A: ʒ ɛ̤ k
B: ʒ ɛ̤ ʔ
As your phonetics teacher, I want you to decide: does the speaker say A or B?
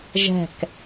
A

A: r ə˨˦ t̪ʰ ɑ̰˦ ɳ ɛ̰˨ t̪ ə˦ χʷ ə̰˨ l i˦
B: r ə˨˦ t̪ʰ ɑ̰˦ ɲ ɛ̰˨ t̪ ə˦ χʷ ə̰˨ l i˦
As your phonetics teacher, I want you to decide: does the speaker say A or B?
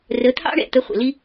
A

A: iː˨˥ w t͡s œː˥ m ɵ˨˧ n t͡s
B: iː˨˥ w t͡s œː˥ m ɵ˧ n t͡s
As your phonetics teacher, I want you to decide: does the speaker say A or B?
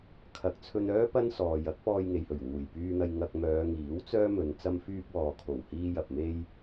A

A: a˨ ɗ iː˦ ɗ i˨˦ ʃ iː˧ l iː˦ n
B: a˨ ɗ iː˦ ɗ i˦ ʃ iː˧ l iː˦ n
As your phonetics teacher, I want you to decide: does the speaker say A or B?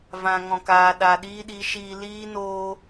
A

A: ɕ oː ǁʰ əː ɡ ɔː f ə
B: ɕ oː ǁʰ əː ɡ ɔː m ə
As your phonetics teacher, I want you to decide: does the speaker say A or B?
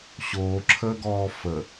A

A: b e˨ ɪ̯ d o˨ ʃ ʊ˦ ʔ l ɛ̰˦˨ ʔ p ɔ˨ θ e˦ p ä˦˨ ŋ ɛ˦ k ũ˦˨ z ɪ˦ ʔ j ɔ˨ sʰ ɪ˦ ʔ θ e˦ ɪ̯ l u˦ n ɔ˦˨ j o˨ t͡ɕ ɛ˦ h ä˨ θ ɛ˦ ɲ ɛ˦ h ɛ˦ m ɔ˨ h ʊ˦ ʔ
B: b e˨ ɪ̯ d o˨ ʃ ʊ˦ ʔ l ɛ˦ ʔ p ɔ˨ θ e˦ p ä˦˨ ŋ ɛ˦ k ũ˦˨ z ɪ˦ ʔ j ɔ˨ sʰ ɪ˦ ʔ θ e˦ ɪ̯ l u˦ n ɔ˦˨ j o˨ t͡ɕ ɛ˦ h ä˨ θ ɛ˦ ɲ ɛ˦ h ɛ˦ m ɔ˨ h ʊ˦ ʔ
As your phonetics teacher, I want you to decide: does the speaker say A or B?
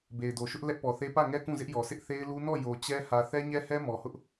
B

